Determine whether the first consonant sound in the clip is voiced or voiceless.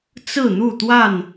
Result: voiceless